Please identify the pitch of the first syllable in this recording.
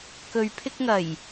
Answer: low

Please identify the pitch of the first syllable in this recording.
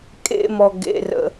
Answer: high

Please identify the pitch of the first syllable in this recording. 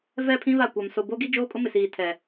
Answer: falling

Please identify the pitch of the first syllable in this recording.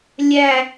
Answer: low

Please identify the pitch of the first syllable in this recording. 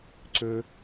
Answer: low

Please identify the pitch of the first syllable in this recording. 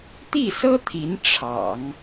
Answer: falling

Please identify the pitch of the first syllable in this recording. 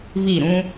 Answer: falling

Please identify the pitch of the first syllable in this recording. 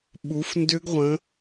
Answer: rising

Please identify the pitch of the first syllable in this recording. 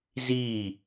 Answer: falling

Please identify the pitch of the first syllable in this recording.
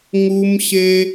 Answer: high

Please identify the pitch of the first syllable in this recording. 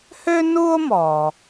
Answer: high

